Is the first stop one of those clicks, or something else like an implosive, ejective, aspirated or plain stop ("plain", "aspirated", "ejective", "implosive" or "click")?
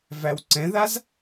click